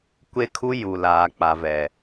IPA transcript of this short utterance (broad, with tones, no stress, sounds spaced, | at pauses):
kʷ e˦ kʰ u˦ j u˨ l aː˨ k͡p a˨ v ɛ˨